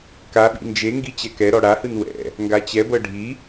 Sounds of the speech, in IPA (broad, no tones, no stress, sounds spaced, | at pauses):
k a ɓ ḭ n d͡ʒ e ŋ ɡ i t͡ɕ ɛ k ɛ ɾ ɔ ɽ a h ɯ n w ɛ̰ | ŋ ɡ a t͡ɕ ɛ b ɤ ɖʱ i